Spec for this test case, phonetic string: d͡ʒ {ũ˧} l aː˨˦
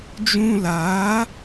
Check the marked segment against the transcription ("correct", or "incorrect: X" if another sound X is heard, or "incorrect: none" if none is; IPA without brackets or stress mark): correct